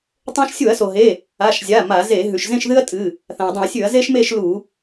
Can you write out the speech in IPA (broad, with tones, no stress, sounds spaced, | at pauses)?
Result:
tˤ õ˥ ʃ sʲ u˧˩˧ ɐ̯ s o˩ ɦ e˩˧˩ | a˩˧˩ ʃ zʲ a˩˧˩ m a˧˩˧ z e˧˩˧ ɦ ʉ˩ ʃ z ẽ˥˧ ʃ ð ɨ˥ ɐ̯ tʼ ɨ˩˧˩ | θ ã˩ ɐ̯ dˤ ĩ˧˩˧ ɐ̯ sʲ ʉ˧˩˧ ɐ̯ z e˥ ʃ m e˥˧ ʃ l u˧˩˧